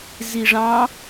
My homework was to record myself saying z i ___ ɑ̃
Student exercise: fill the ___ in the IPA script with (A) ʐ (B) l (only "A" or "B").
A